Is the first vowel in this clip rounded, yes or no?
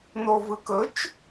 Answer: yes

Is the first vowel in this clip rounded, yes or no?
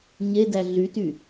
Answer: no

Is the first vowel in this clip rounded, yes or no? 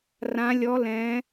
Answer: no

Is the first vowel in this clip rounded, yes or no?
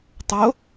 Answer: yes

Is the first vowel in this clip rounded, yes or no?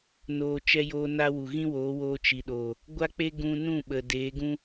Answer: yes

